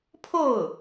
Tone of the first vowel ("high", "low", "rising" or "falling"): falling